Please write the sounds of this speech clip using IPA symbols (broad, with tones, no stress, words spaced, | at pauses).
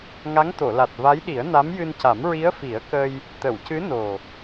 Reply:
ŋa˧˥ŋt̪o˨˩˨la˨˩t̚ va˧˥jɗi˨˩˦ə̯ na˧˥mjɨ˧nca˨˩˦m ɹi˧˥ə̯fi˨˩˦ə̯kə˧j | t̪ə˨˩˨wcɨ˧˥no˨˩